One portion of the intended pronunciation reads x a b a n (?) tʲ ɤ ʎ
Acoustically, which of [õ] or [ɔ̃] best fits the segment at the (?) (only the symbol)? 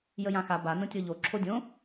õ